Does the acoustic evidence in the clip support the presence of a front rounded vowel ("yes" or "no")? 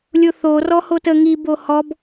no